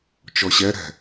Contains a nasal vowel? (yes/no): no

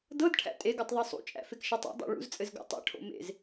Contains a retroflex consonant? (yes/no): yes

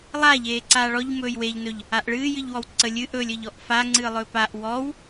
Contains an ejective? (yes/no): no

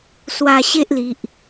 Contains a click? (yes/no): no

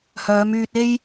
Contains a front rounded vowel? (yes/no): yes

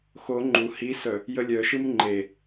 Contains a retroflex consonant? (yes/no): no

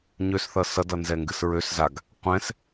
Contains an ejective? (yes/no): no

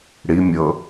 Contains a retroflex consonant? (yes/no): yes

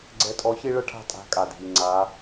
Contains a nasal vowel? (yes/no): no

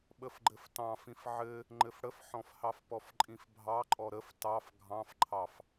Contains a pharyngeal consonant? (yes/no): yes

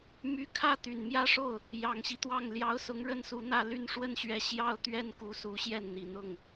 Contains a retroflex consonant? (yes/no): yes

